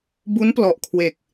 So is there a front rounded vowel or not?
no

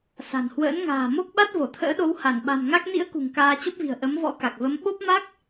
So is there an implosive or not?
yes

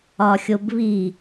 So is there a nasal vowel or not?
no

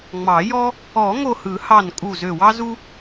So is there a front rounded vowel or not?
yes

